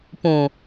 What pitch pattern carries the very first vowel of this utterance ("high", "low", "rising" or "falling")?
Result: low